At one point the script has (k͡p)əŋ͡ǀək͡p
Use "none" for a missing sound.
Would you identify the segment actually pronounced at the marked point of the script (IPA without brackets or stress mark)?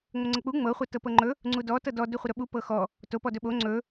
ŋ͡m